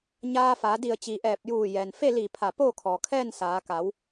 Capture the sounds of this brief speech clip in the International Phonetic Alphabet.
ɲ aː˧ f a˩˧ d i˧˩ ə̯ t͡ɕ iː˩ ʔ ɛː˧˩ p̚ j uː˧˩ j ɛː˩ n f e˥˨ l i˧˩ pʰ a˧˩ p oː˥˨ kʰ ɔː˩ kʰ ɛː˥˨ n s aː˩˧ k a˩˧ w

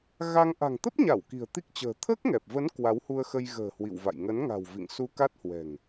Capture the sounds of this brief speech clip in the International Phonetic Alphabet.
ɣ a˧ ŋ ʔ a̤˨˩ ŋ t̪ ə˦˥ p̚ ɲ a˧˩ w k i̤˨˩ ə̯ t̪ i˦˥ k̚ t͡ɕ ə̤ː˨˩ t̪ʰ əː˦˥ k̚ ŋ ɛ˨˩ p̚ v ə˨˦ n k w a˨˦ w h u˧ ə̯ x ə˧ j ɣ ə̤ː˨˩ h w ḭ˧˨ w v a̰˧˨ j ŋ ə˨˦ n ŋ a̤˨˩ w v ḭ˧˨ ŋ s u˧ k a˦˥ t̚ h w ɛ̤˨˩ ŋ

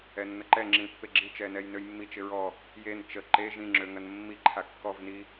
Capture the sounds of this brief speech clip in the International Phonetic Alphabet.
ɛ nː ə ǃ ɛ ŋ͡ǁ ĩ pː e ɡ͡ǁ i t͡ʃ ɛ n ɛ j n ø j mː i t͡ʃ ɪ ɹ ɔ | j e n t͡ʃ ə ǃ e ʒ ĩ ŋ͡ǁ ø ŋ ɐ n mː i ǃʰ a kː ɔ v n i

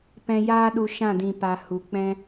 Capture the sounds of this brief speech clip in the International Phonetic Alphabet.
p ɛ̃˧ j aː˦ ɗ u˧ ʃ ã˦˨ d ĩ˨ p a˨ h u˨ k͡p ɛ̃˦

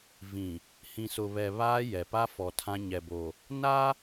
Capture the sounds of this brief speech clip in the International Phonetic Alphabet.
v ĩ˨ | h ĩ˨ s ʊ˨ β ɛ˨ β aː˦ j ɛ˨ p a˦ f ɔ˨ tʰ ã˦ ɲ ɛ˨ b o˨ | n a˦

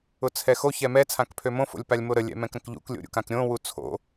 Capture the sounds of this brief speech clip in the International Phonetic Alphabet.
ʊ t͡sʰ ɛ x o ç ɛ m ɛ t͡sʰ ã k pʰ ø m õ f o̰ lʲ p a lʲ m o ɾ ə lʲ ɛ̰ m ɛ̃ k ɾ ə̃ k ʎ ṵ k lʲ o̰ ɾʲ ṵ k ã k ɾʲ õ w u t͡sʰ o̰

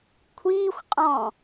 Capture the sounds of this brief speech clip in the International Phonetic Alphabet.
kʷʰ iː xʷ qʼ ɔ̃

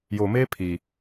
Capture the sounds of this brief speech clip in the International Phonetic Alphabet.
j o˨ m e˦ pʰ i˨

